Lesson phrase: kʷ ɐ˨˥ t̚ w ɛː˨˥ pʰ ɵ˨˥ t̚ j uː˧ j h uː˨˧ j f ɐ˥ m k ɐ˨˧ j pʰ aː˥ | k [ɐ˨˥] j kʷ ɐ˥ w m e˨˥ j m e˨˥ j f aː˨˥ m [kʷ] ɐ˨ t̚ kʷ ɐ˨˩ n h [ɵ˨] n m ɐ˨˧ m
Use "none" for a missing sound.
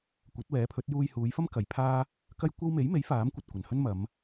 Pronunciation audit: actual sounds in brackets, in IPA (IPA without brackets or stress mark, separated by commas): ɐ˥, kʷ, ɵ˥